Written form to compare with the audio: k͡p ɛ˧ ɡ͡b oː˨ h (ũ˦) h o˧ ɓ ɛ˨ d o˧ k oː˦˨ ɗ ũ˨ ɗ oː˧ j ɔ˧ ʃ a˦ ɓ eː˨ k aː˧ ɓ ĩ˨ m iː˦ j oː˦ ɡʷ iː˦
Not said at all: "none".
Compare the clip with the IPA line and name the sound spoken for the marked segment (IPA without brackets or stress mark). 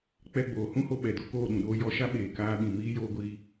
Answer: ũ˦